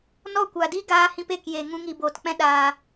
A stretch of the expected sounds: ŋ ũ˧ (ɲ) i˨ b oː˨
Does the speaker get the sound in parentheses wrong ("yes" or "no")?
yes